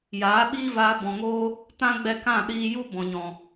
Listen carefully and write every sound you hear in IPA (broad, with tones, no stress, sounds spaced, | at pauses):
j aː˨˦ ɓ iː˦ v aː˧ b ɔ̃˨ ŋ oː˧ | t ã˦ ɡ͡b ɛ˧ k ã˦˨ ɗ iː˧ j u˦ b ɔ̃˨ ɲ ɔ̃˨